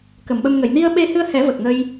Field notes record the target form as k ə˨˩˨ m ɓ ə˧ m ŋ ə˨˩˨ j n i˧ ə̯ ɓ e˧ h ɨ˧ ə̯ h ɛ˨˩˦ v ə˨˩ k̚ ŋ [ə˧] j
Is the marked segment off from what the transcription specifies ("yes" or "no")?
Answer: no